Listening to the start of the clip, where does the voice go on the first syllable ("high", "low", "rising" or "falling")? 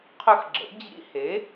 high